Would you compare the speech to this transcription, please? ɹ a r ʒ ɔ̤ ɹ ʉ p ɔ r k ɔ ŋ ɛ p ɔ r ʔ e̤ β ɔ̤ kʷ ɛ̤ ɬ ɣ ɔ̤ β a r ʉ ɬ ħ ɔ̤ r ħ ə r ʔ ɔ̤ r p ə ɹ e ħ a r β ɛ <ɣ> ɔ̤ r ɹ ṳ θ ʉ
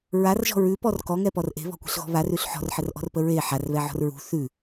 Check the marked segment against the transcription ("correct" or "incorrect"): incorrect